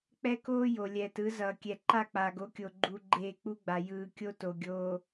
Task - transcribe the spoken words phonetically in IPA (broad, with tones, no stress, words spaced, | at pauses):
k͡pɛ˦koː˦ jo˨lʲɛː˨tɯ˨˦ zʌː˨kʲɛ˨ǃa˦˨k͡paː˨ɡ o˦kʲo˨ɡ͡ǃu˨ ɡ͡ǃeː˦˨k͡pu˦ɡ͡ba˨ jɯː˨ kʲo˦to˨ ɡʲoː˨